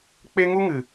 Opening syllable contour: high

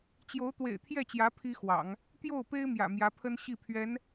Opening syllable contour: rising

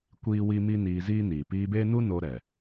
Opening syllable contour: high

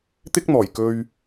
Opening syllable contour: high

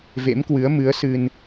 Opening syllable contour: rising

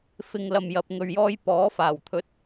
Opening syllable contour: low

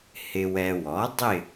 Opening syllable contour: low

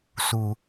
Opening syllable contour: low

